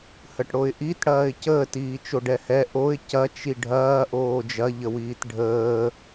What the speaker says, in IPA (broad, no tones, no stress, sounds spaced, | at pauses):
h ə ʈ ɽ o ɪ̯ ʔ i t ɽ ɐː ɪ̯ c əː t iː t͡ʃ o ɖ ɛ h ɛ ʔ o ɪ̯ c ɐ t͡ʃ i ɖʱ ɐː ʔ oː d͡ʒ ɐ ʎ ə w iː t ɖʱ əː